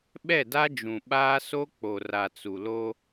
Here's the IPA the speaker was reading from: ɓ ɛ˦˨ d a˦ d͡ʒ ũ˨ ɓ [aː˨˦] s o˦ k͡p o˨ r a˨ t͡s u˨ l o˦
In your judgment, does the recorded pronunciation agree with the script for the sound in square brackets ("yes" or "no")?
no